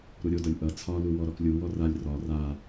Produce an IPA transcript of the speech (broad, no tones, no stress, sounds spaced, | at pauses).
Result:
ɾ u ɾʲ o d ʌ lʲ ʔ ʌ t͡sʰ ɒ l u w ɔ ɾ ɔ k lʲ u w ɔ r a lʲ r ɒ r a